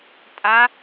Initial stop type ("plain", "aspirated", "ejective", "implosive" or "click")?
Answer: ejective